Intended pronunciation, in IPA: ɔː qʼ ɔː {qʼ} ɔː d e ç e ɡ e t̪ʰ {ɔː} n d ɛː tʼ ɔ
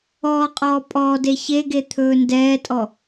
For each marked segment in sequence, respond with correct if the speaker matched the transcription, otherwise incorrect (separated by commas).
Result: incorrect, incorrect